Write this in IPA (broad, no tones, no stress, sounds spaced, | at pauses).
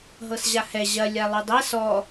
ɦ ɤ s ʑ a h ɛ ʑ ɐ lʲ a lˠ ɵ dˤ ɛ s ɔ